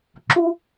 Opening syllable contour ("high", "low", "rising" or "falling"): high